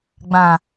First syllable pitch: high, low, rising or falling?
low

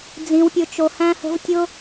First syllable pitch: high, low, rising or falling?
low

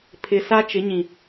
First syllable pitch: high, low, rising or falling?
low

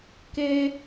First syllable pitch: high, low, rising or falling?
high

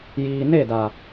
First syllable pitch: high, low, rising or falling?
low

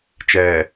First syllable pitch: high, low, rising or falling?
low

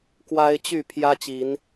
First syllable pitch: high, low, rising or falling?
high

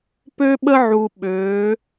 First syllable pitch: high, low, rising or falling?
high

